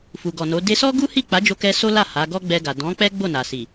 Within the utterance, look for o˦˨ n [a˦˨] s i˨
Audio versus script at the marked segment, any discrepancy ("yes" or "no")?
yes